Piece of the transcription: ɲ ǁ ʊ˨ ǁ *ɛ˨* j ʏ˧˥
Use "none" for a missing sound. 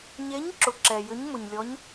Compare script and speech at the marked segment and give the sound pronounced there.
ɛ˨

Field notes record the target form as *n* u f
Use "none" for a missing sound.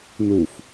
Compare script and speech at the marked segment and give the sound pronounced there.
n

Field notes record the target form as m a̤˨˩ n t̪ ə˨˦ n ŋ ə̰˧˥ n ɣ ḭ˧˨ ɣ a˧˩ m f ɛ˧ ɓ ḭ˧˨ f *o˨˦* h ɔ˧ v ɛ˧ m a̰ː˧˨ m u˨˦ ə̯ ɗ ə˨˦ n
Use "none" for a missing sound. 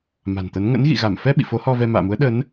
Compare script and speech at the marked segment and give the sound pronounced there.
o˨˦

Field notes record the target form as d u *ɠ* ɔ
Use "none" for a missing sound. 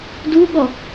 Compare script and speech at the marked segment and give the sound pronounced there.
ɠ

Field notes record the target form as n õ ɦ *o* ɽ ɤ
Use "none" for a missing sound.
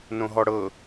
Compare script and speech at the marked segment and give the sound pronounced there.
ɔ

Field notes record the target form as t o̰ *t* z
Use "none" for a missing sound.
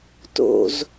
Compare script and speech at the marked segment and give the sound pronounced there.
none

